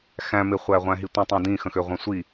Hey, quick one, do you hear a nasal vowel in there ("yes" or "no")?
yes